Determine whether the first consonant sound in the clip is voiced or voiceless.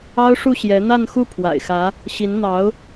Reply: voiceless